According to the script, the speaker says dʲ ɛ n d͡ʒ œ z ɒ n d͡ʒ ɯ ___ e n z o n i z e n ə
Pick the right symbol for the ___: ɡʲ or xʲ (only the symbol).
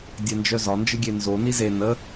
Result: ɡʲ